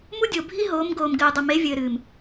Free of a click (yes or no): yes